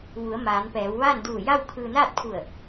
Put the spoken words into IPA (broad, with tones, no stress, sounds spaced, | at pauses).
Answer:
ʋ u˩˧ ə̯ m aː˩˧ n p ɛː˩˧ w ʋ aː˥˨ n d uː˧˩ j a˥˨ w kʰ ɯː˧ n aː˥˨ t̚ pʰ u˧˩ ə̯